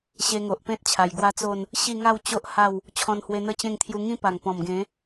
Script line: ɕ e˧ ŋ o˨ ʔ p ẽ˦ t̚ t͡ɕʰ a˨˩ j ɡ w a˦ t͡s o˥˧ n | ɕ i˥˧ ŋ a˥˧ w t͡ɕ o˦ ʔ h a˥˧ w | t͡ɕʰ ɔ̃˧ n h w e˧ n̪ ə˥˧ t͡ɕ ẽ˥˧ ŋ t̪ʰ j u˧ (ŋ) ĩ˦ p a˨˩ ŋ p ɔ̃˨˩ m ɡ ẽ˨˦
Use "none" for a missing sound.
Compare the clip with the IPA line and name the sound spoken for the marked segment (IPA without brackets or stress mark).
ŋ